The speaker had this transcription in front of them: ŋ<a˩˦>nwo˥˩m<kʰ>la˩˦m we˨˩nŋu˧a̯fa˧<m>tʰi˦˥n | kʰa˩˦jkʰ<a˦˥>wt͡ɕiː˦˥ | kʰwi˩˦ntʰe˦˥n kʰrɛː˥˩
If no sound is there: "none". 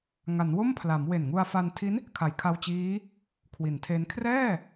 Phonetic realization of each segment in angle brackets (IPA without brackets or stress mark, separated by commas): a˩˦, pʰ, n, a˧